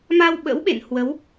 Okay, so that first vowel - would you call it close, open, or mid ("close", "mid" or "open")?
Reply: open